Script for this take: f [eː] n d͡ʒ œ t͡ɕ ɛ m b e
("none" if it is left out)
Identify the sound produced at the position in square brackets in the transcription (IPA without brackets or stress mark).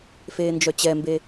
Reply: eː